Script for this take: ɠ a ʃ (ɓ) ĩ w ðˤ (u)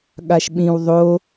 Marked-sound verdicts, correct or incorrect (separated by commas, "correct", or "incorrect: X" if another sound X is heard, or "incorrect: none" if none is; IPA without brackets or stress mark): correct, incorrect: o